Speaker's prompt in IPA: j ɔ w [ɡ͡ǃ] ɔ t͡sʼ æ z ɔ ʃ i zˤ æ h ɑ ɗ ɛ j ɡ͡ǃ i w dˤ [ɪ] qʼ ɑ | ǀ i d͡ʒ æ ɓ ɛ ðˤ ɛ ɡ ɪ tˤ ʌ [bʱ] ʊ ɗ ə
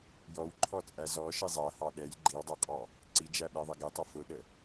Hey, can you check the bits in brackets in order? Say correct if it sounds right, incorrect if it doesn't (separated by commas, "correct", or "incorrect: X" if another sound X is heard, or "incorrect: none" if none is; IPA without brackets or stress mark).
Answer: incorrect: ǃʰ, incorrect: ɛ, incorrect: f